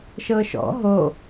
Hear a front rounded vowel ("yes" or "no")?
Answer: no